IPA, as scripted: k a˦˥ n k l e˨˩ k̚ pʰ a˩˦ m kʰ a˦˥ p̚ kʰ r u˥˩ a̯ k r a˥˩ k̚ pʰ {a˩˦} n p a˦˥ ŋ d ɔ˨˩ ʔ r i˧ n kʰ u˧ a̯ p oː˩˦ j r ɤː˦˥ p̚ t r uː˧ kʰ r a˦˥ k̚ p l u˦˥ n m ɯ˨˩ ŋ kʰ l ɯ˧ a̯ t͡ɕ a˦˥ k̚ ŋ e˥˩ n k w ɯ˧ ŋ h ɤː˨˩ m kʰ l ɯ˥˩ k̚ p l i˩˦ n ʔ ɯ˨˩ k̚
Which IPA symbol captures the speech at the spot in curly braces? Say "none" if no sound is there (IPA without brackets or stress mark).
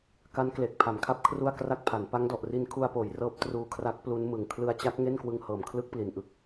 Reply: a˩˦